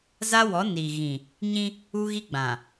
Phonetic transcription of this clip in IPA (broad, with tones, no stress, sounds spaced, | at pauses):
z a˦ w ɔ˨˦ n iː˨ ɣ ĩ˨ | ɲ ĩ˦ | u˦ ɣ i˦ ɡ͡b ã˨